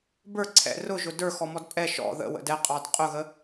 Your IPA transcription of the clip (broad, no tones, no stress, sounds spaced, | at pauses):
b ə˞ ǀʰ ɛ̰ r ʊ ʒ ʊ d ə˞ x ɔ m ɔ d pʼ ɛ ʃ ɔ̰ ð ə̰ w ə̰ d ɛ qʼ ɑ d qʼ ʊ ɣ ə